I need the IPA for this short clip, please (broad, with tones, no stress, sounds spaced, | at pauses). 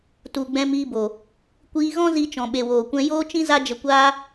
t u˨ ɡ͡b ɛ̃˧ m iː˧ b o˨ | kʷ iː˧ ɣ ɔ̃˦ z i˧ t͡ʃ ɔ̃˨ ɓ e˨ w oː˨ kʷ ɛ̃˧ j oː˦ t͡ʃ ĩ˦ z a˦ d͡ʒ ə˧ kʷ aː˦